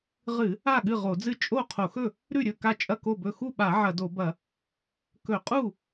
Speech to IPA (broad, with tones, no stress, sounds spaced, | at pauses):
ʁ ɨ˧˩˧ | a˥˩ ɠ ɨ˥˩ ʁ o˧˩˧ d͡z ɨ˥˩ t͡ʃʼ o˥˩ qʰ o˧˩˧ x ɵ˥˩ | ɾ ʉ˥˩ ɾʲ ɵ˥˩ k a˥˩ t͡ʃʼ ɐ˥˩ k o˥˩ b ɵ˥˩ x u˥˩ ɓ a˧˩˧ ʕ ɐ˧˩˧ d o˧˩˧ b ɐ˧˩˧ | k ɵ˧˩˧ qʼ u˥˩